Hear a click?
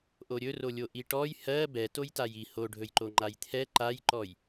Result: yes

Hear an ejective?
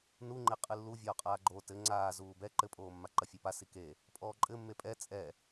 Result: yes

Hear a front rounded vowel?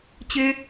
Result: yes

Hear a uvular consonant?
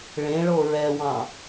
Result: no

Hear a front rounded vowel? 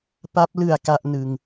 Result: no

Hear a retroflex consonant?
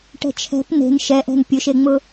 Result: yes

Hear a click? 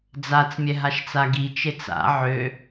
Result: no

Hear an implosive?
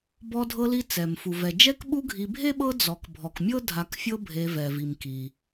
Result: yes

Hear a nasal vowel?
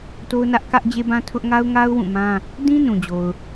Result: yes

